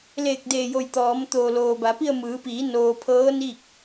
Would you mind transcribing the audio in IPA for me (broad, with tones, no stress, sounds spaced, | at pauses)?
l eː˧˩ k̚ d eː˧˩ j o˧˩ j t̪ ɔː˩˧ m t̪ oː˩ l oː˩ b a˩˧ p i˥˨ ə̯ m ɯː˩˧ p iː˩˧ n oː˧ pʰ ɤː˧˥ n i˥˨ k̚